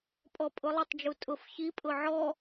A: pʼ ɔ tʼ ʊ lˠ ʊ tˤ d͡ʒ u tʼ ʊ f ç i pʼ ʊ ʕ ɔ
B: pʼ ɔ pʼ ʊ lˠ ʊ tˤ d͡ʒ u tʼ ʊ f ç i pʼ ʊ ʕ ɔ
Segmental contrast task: B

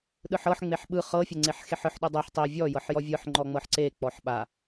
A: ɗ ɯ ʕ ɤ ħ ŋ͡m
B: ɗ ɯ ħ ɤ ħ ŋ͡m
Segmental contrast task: B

